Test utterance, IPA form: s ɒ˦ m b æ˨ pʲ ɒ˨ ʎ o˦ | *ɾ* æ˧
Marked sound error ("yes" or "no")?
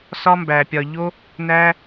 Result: yes